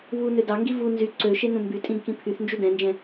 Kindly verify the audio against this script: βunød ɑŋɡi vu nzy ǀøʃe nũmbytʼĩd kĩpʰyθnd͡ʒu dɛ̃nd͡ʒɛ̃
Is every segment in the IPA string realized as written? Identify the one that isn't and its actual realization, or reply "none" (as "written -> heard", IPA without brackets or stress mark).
none